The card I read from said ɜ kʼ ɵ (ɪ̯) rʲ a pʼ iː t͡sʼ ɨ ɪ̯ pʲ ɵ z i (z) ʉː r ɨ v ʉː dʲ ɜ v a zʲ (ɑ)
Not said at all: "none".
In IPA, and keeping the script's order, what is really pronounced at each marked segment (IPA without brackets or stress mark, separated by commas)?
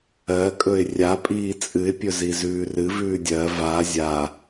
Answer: ɪ̯, z, a